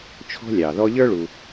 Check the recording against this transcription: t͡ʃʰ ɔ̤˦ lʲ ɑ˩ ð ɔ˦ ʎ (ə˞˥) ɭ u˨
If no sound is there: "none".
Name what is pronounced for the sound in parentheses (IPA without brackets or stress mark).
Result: ə˞˥